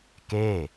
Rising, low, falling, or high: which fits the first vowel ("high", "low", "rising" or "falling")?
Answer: falling